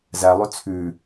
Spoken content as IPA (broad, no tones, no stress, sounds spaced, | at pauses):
z æ lˠ ø t͡sʰ ʉ